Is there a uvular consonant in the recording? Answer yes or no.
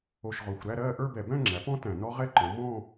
yes